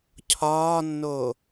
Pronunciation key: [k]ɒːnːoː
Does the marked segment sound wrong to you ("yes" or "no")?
yes